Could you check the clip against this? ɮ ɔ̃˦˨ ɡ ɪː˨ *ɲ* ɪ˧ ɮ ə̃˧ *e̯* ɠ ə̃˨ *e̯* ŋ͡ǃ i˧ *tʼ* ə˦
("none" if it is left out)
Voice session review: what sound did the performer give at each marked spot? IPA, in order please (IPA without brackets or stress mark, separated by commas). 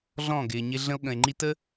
ɲ, o̯, e̯, t